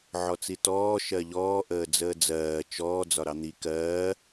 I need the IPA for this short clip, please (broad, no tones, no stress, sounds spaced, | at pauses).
ʕ ɔ t͡s i t ɔː ʃ ɜ ʎ ɔː ʔ əː d͡z əː d͡z ɜː t͡ʃ ɔː d͡z ɒ ɾ ɑ n̪ i k ɜː